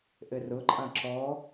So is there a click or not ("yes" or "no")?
yes